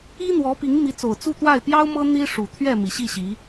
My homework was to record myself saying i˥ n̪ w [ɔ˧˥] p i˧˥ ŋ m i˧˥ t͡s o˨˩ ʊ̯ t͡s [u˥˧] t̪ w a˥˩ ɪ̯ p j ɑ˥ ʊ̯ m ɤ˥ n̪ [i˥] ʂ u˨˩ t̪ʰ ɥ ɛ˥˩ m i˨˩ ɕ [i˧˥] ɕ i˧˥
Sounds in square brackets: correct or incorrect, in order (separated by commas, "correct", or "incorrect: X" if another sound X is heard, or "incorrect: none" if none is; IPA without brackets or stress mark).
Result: correct, correct, correct, incorrect: i˥˩